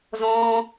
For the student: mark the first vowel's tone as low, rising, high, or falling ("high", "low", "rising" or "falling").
high